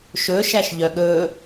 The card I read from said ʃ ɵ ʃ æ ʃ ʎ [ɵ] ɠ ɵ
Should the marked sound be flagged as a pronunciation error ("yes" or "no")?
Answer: yes